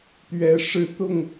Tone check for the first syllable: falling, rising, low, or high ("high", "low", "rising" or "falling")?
rising